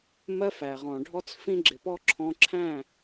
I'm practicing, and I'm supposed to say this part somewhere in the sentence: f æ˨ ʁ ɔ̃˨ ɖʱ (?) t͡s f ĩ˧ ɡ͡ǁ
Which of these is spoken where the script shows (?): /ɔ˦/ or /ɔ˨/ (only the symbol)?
ɔ˦